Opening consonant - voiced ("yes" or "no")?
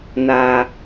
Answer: yes